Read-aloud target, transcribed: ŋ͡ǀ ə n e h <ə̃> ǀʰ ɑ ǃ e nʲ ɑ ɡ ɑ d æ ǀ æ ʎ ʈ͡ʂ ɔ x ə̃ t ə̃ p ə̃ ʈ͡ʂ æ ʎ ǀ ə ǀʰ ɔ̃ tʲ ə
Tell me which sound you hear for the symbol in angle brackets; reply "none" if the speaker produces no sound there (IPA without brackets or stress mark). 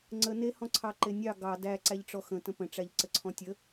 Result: ɔ̃